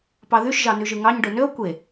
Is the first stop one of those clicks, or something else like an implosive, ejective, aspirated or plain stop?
plain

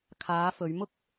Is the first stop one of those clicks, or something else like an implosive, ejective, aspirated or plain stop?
aspirated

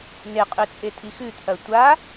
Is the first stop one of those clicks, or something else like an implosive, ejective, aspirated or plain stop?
ejective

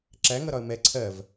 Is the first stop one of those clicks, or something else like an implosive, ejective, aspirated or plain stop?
click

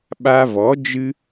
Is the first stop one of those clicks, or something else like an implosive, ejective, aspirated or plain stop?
implosive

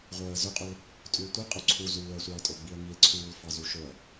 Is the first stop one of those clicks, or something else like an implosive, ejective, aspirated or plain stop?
ejective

